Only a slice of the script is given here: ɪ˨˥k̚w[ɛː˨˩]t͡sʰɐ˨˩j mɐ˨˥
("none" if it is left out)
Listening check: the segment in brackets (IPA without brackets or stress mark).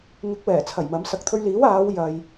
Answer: ɛː˨˩